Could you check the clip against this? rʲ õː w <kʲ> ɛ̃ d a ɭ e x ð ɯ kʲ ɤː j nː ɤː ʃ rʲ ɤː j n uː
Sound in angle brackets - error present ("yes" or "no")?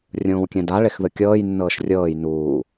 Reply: no